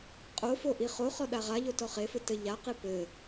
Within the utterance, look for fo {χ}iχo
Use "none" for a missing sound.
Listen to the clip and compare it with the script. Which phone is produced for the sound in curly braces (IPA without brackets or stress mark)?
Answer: ʔ